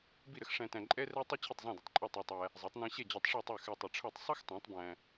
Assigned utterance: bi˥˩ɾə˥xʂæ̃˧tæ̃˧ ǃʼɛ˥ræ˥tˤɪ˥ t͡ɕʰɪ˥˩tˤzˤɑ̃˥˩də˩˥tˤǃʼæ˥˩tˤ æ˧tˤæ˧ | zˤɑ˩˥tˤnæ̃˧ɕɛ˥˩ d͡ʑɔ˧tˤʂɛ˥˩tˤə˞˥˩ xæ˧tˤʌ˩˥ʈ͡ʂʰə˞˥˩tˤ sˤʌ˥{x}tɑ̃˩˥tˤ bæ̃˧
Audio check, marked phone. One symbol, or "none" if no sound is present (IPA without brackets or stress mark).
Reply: x